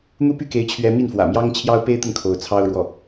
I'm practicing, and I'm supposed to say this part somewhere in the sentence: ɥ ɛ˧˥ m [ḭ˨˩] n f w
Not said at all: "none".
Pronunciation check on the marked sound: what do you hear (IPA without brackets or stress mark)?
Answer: i˥˩